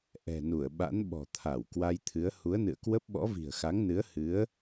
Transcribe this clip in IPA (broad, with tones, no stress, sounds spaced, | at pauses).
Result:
ʔ ɛ̤˨˩ n u˧˩ ə̯ ɓ a̰˧˥ n ɓ ɔ̤˨˩ t̪ʰ a˧˩ w k w a˧ j t̪ʰ ɨ˨˦ ə̯ h u˨˦ ə̯ n ɨ̰˧˨ ə̯ k w ə˦˥ p̚ ɓ ɔ̰˧˥ v i̤˨˩ ə̯ x a˨˦ ŋ n ɨ˨˦ ə̯ h ɨ˨˦ ə̯